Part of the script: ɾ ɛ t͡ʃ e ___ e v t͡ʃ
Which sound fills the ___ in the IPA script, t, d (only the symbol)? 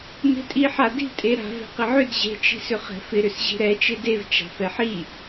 d